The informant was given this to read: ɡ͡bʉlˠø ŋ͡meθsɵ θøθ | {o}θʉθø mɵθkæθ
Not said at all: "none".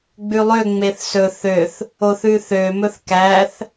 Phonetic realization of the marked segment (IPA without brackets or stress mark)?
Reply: o